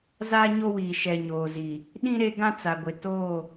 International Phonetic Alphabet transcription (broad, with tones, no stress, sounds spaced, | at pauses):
z aː˦ ɲ o˦ w iː˨ ʃ ɛ˨ ɲ oː˨ z i˨ | ɗ ĩ˦ ɾ e˦ ɡ ã˦ t͡s a˨ ɡʷ ɪ˨ t oː˦˨